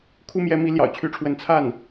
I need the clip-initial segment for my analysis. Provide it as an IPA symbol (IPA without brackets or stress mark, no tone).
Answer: kʰ